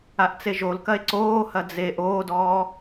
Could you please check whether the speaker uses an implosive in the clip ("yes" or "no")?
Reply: no